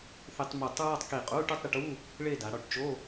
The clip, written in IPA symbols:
θɪ˧tˤ mu˧˩tˤ ɹɔ˥˧tˤki˧˩qʼu˧˥˧ ʈu˥˧tˤɾɪ˧ʈu˧˥˧ | ɭe˥˧da˩˧ɽɔ˧˩ʈ t͡ʃo˧˥˧

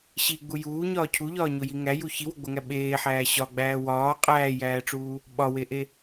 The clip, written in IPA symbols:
ɕiɡ͡bu juːɲɒː cʰuʎɒːɲoji ŋæju çiwoɡ͡boŋæ ɓeːħæː ɕɒɡ͡bæː wɒː qʼæːjæːʈ͡ʂuː | ɓɒweʔe

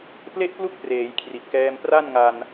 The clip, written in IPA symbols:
ple˥˩ʔplu˥˩k̚preː˩˦j kʰri˨˩t̚kɛː˧m pra˥˩nŋa˧n

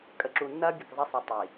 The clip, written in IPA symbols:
kʼə˨ǁu˨nːɐː˦ bʲə˨kzˤɐ˦ sˤi˨ tˤi˨

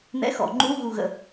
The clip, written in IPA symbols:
n̪ɛ̰˧˥˧xɔ̰˨˩˦ ŋ͡ǃu˧˥˧ ɣu˦˨ɣə̰˦˨

